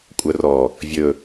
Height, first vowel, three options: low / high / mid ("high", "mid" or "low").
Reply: mid